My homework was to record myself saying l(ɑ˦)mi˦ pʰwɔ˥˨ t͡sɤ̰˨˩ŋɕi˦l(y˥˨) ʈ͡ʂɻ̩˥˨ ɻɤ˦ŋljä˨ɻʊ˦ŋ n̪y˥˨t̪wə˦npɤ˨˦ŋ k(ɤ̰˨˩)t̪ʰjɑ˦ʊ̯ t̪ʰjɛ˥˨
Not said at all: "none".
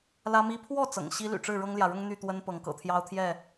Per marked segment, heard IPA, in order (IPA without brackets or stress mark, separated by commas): ä˦, y̰˨˩, ɤ̰˨˩